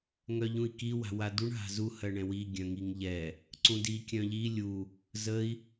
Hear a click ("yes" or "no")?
yes